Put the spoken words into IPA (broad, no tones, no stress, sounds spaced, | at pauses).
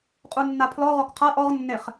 qʼ u nː a pʰ l ɔ ʁ ɔ k qʰ a ʔ ɔ ʁ nː e χ